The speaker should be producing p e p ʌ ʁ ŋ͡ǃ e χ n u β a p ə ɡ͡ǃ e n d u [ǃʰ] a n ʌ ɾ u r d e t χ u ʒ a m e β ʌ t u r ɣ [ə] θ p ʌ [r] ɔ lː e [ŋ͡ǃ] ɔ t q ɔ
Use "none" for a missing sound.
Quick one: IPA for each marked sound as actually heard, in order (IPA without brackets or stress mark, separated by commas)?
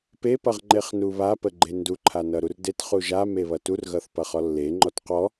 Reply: ǃʰ, ʌ, χ, ŋ͡ǃ